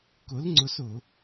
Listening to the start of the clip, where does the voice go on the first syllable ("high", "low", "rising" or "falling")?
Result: rising